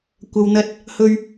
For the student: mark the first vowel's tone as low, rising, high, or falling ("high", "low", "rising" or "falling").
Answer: low